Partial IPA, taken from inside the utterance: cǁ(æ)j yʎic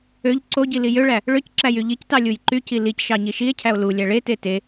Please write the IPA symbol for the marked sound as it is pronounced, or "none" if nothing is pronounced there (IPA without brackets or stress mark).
æ